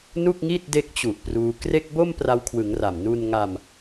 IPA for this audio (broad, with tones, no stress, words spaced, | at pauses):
nu˥˩k̚ŋi˥˩t̚ de˦˥k̚t͡ɕu˨˩ʔ pruː˧ kre˥˩k̚ bo˥˩m pra˦˥wkʰwɯ˩˦ŋra˨˩m nu˧nŋa˧m